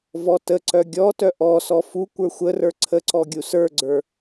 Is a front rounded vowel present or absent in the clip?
present